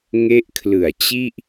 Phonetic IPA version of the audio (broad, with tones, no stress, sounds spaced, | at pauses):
ŋ e˦˥ ʔ kʰ l ɯ˨˩ a̯ t͡ɕ i˥˩ ʔ